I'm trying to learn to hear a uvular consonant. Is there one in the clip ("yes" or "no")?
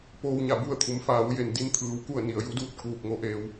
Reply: no